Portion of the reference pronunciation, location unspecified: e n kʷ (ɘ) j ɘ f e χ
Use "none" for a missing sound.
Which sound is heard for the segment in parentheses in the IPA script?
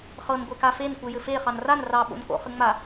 e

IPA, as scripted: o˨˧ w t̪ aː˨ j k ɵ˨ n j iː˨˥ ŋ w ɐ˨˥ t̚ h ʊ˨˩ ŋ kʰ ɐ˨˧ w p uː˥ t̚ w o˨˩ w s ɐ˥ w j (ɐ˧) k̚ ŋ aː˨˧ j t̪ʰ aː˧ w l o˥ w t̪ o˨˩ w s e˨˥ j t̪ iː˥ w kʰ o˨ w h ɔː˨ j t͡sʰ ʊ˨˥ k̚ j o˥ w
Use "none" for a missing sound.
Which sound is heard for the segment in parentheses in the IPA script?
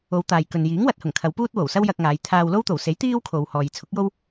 ɐ˧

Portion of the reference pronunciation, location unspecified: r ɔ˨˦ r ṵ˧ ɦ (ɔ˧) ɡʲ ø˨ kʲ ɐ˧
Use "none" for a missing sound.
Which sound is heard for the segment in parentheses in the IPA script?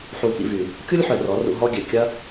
ɔ˧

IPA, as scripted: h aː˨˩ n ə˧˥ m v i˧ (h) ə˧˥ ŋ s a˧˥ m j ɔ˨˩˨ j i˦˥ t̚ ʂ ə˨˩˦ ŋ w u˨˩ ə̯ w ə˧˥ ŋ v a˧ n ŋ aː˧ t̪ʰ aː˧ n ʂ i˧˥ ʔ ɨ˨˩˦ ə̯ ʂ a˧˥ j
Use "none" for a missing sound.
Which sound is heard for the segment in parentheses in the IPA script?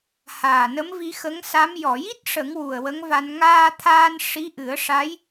x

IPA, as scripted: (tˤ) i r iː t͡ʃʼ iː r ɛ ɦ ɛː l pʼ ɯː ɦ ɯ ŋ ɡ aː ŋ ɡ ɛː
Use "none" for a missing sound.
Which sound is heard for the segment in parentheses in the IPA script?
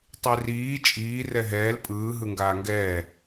tˤ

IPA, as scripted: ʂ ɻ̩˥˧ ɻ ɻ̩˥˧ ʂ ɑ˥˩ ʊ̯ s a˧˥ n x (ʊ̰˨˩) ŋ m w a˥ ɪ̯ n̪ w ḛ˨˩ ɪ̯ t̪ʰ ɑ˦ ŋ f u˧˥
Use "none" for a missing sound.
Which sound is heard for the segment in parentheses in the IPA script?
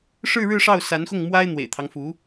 ʊ˥˩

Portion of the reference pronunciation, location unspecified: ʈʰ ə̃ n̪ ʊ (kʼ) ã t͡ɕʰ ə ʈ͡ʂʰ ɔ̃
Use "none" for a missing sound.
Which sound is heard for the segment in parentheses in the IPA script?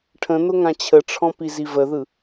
ŋ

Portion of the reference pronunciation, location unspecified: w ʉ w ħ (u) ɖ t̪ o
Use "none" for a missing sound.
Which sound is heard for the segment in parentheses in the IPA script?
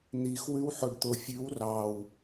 o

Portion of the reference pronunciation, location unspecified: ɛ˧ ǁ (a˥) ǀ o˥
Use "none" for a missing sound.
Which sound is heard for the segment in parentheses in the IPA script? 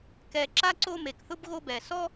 a˥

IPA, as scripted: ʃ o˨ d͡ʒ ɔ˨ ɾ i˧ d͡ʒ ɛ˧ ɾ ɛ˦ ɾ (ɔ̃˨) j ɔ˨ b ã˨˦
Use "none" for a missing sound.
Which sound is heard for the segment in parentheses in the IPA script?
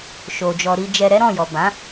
ɔ̃˦˨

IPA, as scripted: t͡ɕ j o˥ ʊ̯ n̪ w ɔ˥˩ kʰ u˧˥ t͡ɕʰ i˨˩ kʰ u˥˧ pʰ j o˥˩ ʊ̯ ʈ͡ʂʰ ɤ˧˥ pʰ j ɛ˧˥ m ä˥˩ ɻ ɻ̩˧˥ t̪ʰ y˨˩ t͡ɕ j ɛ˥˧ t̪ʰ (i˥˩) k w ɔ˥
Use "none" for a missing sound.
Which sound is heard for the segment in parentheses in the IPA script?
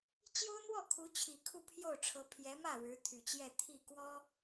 i˥˩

